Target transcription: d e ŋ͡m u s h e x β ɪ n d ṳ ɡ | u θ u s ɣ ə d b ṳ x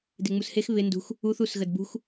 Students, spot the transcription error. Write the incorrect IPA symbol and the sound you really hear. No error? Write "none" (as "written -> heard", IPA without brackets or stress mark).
ɡ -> x